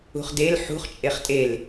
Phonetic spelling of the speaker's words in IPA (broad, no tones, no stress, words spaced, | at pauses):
ṳχdel ħṳχ t͡ʃʼeχtʼel